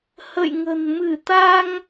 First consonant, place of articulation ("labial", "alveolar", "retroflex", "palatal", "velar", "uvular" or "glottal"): glottal